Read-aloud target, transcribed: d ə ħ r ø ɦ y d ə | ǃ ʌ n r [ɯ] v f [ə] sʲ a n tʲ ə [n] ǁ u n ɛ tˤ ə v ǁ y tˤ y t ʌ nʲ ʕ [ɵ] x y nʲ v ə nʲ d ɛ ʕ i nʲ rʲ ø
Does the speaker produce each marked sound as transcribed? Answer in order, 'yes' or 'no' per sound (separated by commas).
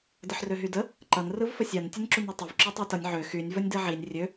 yes, yes, yes, no